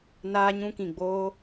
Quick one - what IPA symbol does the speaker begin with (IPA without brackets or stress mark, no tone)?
n